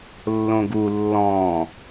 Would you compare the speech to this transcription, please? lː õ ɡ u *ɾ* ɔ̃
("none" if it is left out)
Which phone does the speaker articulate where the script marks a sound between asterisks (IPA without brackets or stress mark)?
lː